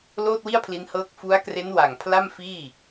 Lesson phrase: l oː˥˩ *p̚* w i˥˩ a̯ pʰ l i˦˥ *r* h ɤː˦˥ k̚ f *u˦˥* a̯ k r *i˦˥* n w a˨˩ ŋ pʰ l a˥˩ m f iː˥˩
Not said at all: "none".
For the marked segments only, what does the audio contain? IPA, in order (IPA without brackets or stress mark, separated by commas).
t̚, n, u˦˥, e˦˥